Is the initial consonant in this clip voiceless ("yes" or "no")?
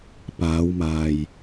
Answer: yes